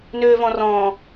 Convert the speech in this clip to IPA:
n øː v ɔ̃ r ɔ̃ː

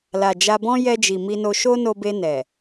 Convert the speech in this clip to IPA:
l a˨ d͡ʒ a˧ b ɔ̃˦ j ɛ˧ d͡ʒ i˨ m i˧ n o˧ ʃ o˦ n o˧ b e˧ n ɛ˨

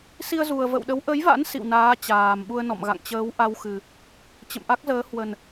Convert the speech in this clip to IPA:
s i˧ ə̯ z u˨˩ ə̯ v ə̰˧˨ w ɗ ə˨˦ w ʔ ə˨˦ j v a̰˧˥ n s ḭ˧˨ w n aː˨˦ t͡ɕ aː˨˩ m ɓ u˧ ə̯ n ɔ̰˧˨ m ɣ a̰˧˨ ŋ t͡ɕ əː˨˦ w ʔ a˧ w x ɨ˨˩ | t͡ɕ ə̰˧˨ m ʔ a˦˥ k̚ z əː˨˦ h w ə˨˩ n

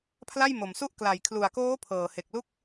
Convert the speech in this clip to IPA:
pʰ l a˥˩ j m o˨˩ m s u˥˩ ʔ k l a˨˩ j kʰ l u˨˩ a̯ k oː˦˥ pʰ ɤː˨˩ h e˨˩ k̚ l u˥˩ k̚

